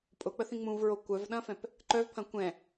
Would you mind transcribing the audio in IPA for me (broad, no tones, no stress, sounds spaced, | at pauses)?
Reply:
pʼ ʊ k͡p ə θ ĩ ŋ͡m ũ v ɹ o kʷ œ v ɗ ɐ̃ f ɛ̃ p | ǃ œ v pʰ ɐ̃ kʷ ɛ̃